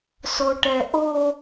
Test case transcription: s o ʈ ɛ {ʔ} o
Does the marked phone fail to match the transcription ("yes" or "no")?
no